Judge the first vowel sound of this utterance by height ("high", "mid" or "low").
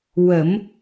mid